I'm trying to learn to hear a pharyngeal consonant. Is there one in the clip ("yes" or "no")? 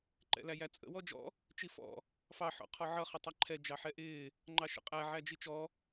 yes